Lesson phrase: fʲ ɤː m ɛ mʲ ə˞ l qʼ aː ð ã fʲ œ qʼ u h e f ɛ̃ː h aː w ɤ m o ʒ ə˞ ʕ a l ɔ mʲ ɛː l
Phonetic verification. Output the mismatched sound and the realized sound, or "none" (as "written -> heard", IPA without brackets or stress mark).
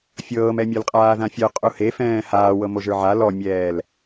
none